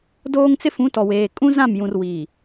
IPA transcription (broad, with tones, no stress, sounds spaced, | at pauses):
d oː˦ ŋ t͡s ɪ˦ f ũ˨˦ t ɔ˨ w eː˨ kʼ ũ˦ z ã˦˨ m j ũ˨ r w iː˨